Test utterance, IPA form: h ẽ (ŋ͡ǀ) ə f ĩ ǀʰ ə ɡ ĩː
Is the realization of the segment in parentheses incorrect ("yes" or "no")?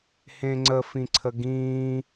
no